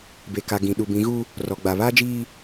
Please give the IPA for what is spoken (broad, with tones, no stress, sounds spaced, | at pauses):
b e˨ k a˨ ɡ ĩ˨ ɗ u˨ b ĩ˨˦ ɣ u˦ | r ɔ˨ ɡ͡b a˨ β aː˦ d͡ʒ iː˦